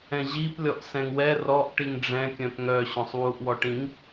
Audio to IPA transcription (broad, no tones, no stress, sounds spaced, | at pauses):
ɛ̃ ʑ i p lʲ ɔ ʔ s ɛ̃ ŋ w ɛ r ɔ ʔ ʈ i ŋ ɖ͡ʐ ɛ̃ kʲ œ̃ p ŋ œ ɕ œ̃ sˤ w u ʔ w ɔ ʈ ĩ ŋ